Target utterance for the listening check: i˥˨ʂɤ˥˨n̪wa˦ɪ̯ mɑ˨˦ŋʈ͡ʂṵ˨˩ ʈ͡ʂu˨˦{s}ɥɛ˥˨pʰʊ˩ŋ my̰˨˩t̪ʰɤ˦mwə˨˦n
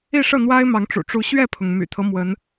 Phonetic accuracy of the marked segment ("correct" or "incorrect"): incorrect